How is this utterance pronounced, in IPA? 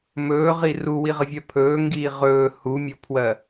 m ɵː ʁ i r u w i ʁ ə vʲ ɜ pʰ ɵː ŋ ɡ iː ʁ ɵː h u mʲ ɔ pʰ w ɜ

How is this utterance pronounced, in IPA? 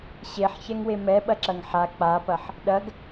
ɕ e ħ ç ɛ ŋ w e m ɛ ɓ ɐ ǁ ɐ ŋ ħ a k͡p a p ɐ ħ | ɗ ɐ ɡ

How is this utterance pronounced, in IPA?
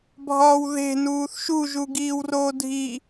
bʱ ɒː w ð e̤ n uː θ ʃ u ʒ u ɡ iː w r oː dʱ i

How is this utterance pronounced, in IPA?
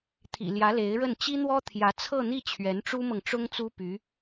t̪ʰ ḭ˨˩ l j ä˧˥ l e˧˥ ɪ̯ ɻ ə˥˩ n t͡ɕ i˥ n̪ w ɔ˥ t̪ʰ j ä˧˥ t͡sʰ ɤ˥˧ n̪ i˥˩ t͡ɕʰ ɥ ɛ˧˥ n ʈ͡ʂ u˥ m ɤ˨ ŋ ʈ͡ʂ ʊ˥ ŋ t͡s u˥ p y˧˥

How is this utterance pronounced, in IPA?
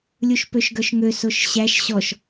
lʲ u ʃ p ø ʃ ɡ œ ʃ ŋ ø s o ʃ ɕ æ ʃ ɕ ɔ ʃ

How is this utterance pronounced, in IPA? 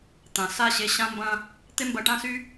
t̪ ã˨ s a˦˨ ɕ e˧ ɕ ã˦ m b ɐ̃˦ | t̪ e˦ m b ɐ˧ ʈ ã˦ s y˦

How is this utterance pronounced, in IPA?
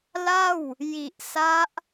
l a˥˩ w | j i˨˩ ʔ s a˦˥ ʔ

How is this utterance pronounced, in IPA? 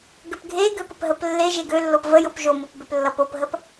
ɡ ø p ɡʱ e ɡ ø p ə p ɦ ə p lː e ʒ e ɡ ø lː o p v ə j o p ʒ o m o p b ø p lː ʌ p o p ɦ ə p

